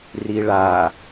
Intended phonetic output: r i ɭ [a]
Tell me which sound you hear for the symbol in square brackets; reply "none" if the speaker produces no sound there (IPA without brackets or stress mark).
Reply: a